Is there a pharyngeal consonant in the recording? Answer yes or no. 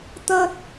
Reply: no